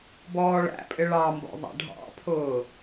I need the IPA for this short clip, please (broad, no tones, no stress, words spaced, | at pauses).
bɔːɭæ̰pʼɪ ɭɑmbɔ̰ ðˤæ̰ɖʱɑ̰pʰʊː